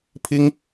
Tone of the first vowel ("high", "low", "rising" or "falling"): high